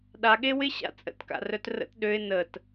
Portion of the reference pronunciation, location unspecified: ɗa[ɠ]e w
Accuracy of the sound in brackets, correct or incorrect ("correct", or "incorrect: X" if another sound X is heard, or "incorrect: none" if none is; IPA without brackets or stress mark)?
correct